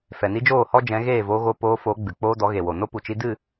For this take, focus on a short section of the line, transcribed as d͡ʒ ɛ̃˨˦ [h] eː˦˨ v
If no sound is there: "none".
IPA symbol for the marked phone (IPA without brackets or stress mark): ɣ